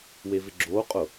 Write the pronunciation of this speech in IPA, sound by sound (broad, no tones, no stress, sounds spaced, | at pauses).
w e v ɪ ɡ͡ǁ oː qʼ ʊ